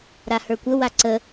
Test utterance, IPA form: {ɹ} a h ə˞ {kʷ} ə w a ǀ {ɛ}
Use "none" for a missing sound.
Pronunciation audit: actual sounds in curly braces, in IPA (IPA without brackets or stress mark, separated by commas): ɾ, kʷ, ə